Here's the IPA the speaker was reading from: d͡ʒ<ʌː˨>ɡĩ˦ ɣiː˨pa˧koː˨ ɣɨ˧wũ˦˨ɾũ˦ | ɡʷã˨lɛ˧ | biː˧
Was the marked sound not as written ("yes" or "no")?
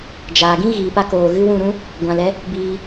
yes